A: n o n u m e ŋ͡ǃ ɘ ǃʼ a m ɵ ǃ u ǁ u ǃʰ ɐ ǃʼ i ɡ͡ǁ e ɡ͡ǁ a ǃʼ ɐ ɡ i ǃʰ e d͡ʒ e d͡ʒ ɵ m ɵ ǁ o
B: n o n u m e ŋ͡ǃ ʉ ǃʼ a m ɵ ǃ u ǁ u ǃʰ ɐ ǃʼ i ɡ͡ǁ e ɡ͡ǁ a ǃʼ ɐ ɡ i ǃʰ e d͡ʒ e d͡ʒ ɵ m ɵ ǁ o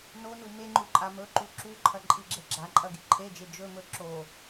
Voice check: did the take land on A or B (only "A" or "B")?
B